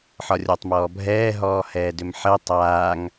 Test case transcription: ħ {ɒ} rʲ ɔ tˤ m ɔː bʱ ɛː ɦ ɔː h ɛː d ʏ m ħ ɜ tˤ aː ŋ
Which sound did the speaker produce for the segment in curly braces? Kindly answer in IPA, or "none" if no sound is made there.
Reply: ɒ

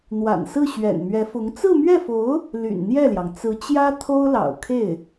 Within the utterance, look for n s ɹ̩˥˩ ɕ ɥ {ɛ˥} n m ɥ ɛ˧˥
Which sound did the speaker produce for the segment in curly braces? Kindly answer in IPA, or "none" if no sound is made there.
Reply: ɛ̰˨˩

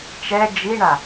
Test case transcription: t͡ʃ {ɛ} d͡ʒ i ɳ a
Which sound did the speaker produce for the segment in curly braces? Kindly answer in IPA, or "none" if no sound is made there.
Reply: ɛ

